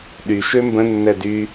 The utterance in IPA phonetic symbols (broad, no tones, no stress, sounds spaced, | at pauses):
ɗ y ʃ ø m b ə̃ nː ɛ d y